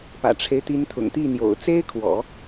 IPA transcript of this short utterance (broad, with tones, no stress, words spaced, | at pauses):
pä̰˨˩ʈ͡ʂʰe˦ɪ̯t̪i˧˥nt̪ʰʊ̰˨˩ŋ t̪i˥˩n̪jo̰˨˩ʊ̯ t͡se˥ɪ̯kʰwɔ̰˨˩˦